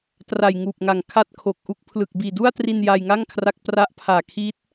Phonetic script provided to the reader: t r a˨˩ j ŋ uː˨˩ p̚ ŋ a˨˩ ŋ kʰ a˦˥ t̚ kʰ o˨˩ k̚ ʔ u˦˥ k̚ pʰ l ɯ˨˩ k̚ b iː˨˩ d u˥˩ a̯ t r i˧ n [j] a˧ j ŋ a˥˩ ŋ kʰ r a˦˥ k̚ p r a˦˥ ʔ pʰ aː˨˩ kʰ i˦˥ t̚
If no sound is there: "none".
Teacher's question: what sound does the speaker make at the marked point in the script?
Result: j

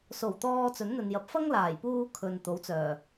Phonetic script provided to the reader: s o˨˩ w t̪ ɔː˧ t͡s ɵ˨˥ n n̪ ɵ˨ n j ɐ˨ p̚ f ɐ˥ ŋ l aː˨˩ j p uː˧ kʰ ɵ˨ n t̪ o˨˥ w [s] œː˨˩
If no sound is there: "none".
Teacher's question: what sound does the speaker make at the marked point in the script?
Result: t͡s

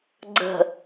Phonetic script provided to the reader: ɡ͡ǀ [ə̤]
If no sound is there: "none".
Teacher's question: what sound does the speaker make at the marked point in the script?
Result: ə̤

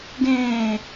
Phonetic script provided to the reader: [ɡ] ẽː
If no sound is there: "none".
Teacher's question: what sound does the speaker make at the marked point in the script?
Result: ɡ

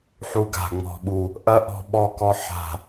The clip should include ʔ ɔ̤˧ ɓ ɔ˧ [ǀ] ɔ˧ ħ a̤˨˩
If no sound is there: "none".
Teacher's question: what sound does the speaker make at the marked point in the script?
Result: k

